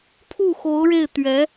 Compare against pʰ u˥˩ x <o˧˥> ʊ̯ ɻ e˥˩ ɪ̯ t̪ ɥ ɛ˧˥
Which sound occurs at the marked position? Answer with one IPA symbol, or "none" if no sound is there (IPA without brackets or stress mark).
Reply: o˧˥